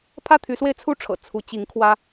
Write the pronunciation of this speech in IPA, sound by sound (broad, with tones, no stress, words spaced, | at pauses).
pʰä˥˨t̪ʰy˨˦swe˧ɪ̯ t͡sʰu˥˨ʈ͡ʂʰɤ̰˨˩ t͡sʰu˨˦t͡ɕi˨˦ŋkʰwä˦